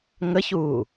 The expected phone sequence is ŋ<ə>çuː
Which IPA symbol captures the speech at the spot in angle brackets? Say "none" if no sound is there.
ə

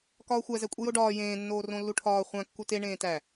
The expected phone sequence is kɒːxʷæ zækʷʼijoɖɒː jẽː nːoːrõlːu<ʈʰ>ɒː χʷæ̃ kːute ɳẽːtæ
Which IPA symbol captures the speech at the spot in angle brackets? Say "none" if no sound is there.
ʈʰ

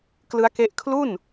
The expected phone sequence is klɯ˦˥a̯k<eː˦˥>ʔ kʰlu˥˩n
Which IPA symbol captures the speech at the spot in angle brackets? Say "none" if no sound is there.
e˦˥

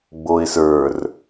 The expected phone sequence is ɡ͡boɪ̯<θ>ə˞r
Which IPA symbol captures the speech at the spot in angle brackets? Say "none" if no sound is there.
s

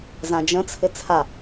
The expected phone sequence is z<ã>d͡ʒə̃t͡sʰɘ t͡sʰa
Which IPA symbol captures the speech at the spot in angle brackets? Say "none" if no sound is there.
ã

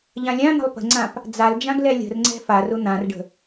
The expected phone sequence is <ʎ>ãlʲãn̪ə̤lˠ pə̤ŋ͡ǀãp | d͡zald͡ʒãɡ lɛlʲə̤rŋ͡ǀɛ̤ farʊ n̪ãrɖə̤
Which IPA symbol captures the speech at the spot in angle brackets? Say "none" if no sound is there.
ʎ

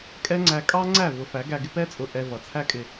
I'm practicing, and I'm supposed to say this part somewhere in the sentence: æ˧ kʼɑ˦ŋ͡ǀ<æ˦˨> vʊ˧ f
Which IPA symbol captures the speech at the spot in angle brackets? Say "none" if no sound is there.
æ˦˨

